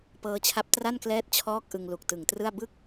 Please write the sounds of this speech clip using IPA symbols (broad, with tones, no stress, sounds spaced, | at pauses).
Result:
p ɤː˦˥ t͡ɕʰ a˦˥ p̚ t r a˥˩ n k l ɛː˦˥ t̚ t͡ɕʰ ɔː˦˥ k̚ ʔ ɯ˧ ŋ l u˨˩ k̚ t ɯ˨˩ ŋ t r ɯ˥˩ a̯ b ɯ˥˩ k̚